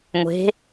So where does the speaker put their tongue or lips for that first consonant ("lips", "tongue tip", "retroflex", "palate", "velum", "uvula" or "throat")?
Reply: velum